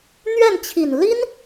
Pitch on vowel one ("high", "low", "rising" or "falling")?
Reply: falling